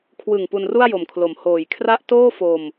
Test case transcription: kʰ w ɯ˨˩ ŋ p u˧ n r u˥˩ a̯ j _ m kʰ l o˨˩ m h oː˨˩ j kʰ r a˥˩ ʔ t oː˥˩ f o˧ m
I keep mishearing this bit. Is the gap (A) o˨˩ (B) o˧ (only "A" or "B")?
A